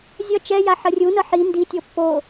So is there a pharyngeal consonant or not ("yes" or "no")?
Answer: yes